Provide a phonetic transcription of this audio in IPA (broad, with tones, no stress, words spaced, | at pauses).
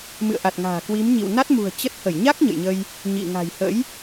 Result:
mɨ̰˧˨ə̯ʔa˨˩t̚ŋa̤ː˨˩ kwi˨˦mɲḭ˧˨w na˦˥t̚mṳ˨˩ə̯ t͡ɕə˦˥t̚ hə˧˩jɲa˦˥k̚ ɲə̰˧˨jɲə˧j | ɲḭ˧˨ŋa̤˨˩jhə̰˧˥j